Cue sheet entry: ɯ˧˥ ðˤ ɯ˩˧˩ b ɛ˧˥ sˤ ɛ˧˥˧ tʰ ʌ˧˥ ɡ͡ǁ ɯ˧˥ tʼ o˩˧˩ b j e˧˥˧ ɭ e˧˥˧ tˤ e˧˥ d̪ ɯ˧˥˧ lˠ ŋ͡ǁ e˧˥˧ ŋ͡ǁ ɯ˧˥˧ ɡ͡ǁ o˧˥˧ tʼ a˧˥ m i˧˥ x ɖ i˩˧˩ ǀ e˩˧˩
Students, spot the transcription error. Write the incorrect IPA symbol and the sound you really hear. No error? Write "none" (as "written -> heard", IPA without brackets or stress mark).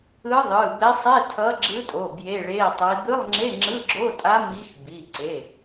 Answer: ɖ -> b